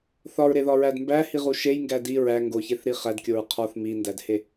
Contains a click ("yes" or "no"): no